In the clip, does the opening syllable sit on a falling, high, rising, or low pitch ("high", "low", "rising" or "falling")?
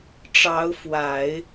rising